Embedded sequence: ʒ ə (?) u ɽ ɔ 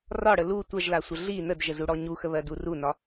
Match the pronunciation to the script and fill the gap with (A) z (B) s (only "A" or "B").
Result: A